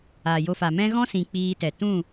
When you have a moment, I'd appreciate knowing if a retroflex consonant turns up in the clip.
no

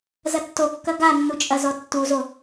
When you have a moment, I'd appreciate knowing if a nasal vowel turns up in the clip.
no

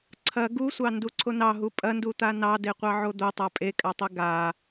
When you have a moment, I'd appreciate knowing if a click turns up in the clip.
yes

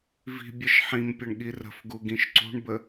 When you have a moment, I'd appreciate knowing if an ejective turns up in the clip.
no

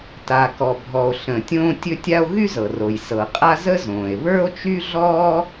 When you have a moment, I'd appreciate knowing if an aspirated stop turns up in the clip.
no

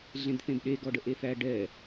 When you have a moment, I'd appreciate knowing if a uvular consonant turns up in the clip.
no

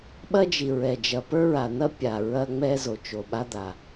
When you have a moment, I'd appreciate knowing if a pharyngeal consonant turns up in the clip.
no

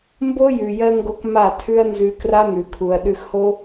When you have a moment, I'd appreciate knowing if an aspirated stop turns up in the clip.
yes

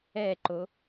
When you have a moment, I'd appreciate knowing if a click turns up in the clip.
yes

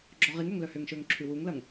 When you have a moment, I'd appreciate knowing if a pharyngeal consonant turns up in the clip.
no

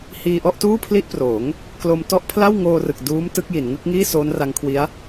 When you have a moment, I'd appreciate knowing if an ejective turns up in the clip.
no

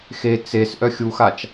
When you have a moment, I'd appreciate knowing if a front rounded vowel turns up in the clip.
yes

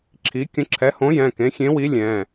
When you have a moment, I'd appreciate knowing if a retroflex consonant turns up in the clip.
no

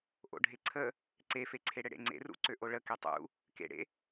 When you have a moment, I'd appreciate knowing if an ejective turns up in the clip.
no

